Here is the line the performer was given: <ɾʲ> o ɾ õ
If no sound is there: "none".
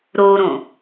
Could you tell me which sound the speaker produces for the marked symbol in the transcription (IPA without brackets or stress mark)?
ɾ